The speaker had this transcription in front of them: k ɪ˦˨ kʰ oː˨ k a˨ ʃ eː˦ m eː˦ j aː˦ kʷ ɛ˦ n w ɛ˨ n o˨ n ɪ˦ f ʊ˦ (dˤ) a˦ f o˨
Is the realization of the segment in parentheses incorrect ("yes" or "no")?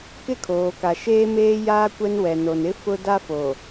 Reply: yes